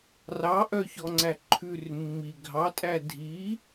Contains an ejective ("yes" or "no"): yes